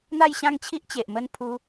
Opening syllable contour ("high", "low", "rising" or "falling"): falling